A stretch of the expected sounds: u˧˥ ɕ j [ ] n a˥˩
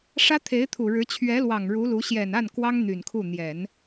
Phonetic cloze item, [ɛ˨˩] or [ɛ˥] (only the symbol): ɛ˨˩